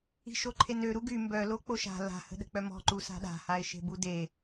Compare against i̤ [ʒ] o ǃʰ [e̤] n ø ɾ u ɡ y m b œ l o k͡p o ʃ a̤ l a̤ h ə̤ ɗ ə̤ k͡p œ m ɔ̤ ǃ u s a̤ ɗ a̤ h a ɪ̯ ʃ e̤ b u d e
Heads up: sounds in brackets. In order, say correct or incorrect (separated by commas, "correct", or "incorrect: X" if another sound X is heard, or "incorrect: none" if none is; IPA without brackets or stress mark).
incorrect: ʃ, incorrect: e